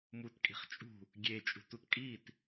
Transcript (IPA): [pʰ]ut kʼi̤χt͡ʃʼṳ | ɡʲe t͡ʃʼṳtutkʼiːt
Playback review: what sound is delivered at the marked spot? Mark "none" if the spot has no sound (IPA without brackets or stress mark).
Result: m